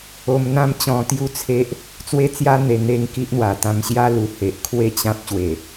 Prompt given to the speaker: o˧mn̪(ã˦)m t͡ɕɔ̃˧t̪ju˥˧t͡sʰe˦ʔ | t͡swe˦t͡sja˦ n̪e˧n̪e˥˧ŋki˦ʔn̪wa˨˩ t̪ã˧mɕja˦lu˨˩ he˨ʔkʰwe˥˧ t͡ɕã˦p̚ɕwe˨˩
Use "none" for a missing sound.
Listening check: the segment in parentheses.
ã˦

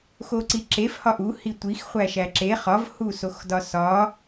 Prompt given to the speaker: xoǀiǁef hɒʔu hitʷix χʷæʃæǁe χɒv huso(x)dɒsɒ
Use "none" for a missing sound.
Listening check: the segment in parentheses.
x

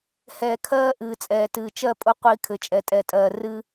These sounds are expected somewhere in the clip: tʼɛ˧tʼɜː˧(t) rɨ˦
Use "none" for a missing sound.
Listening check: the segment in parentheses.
none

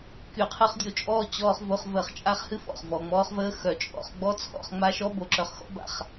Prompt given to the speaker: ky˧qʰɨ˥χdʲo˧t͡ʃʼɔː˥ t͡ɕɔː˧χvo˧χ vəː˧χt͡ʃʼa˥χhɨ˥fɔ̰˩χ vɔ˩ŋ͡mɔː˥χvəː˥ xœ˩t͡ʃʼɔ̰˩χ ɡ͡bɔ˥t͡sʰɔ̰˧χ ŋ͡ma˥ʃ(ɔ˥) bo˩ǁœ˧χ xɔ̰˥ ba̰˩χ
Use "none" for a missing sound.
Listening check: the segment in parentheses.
ɔ˥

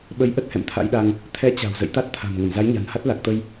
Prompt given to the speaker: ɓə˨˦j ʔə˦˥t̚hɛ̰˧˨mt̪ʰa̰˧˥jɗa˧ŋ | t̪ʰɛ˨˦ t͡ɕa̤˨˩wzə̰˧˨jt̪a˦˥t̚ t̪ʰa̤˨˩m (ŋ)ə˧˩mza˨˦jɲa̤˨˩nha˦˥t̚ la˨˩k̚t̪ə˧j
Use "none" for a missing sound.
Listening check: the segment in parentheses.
ŋ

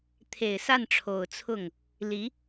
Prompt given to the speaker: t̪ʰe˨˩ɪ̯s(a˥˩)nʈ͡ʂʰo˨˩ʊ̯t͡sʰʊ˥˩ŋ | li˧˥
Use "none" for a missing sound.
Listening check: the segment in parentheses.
a˥˩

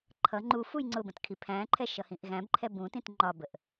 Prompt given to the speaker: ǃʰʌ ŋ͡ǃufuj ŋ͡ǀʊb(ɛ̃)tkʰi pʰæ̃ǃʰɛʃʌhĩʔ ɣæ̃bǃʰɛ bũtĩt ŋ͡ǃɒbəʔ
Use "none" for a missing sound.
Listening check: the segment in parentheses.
ə̃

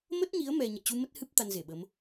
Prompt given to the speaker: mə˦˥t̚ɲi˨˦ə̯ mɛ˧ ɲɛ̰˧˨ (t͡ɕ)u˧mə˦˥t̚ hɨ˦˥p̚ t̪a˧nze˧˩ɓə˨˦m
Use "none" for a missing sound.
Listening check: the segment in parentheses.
t͡ɕ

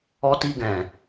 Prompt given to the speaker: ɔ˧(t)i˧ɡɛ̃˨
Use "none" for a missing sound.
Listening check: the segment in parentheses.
t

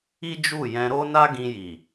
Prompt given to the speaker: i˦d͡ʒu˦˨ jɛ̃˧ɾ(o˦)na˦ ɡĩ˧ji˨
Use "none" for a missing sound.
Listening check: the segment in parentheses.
o˦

